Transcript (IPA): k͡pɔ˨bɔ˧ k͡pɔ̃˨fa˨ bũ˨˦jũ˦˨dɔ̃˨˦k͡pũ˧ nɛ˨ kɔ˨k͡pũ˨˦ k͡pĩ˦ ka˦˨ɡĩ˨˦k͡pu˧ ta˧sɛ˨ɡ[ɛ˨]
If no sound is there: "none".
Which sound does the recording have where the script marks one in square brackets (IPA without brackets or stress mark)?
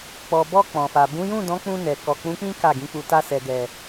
ɛ˨